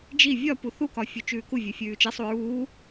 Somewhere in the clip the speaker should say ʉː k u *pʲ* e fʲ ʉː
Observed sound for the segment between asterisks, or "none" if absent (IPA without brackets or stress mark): vʲ